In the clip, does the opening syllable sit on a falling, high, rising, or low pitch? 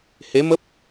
rising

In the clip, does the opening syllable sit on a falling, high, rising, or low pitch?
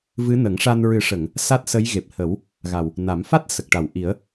rising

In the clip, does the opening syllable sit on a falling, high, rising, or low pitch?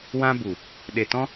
high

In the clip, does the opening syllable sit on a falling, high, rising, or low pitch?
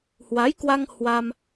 rising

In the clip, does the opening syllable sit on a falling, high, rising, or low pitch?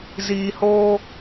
low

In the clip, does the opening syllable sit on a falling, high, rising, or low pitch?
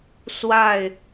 falling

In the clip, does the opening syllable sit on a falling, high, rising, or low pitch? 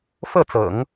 falling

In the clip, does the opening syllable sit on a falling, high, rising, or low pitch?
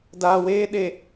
low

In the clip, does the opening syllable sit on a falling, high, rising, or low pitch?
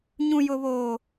high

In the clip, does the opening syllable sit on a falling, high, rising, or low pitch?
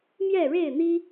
falling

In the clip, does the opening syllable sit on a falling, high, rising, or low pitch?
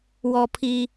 low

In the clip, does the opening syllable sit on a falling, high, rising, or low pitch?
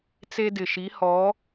high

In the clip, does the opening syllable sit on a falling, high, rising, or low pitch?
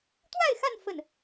falling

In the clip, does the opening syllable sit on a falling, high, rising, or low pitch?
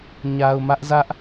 low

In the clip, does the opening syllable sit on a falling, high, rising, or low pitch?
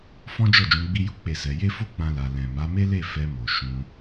high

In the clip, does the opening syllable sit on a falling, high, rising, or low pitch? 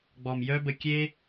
low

